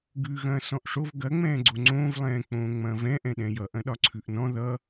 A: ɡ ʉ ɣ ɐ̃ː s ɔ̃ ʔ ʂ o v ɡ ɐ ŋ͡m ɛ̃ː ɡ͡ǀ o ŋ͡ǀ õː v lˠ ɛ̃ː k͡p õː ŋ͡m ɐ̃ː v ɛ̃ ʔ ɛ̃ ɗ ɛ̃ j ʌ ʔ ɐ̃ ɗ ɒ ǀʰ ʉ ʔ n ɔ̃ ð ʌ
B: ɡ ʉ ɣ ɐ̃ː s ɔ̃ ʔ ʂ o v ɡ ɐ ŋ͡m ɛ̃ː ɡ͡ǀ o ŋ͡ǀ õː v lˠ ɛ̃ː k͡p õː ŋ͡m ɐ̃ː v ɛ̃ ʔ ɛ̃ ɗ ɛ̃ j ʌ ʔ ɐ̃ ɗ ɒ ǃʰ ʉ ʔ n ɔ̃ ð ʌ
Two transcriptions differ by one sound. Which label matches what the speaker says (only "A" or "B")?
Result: A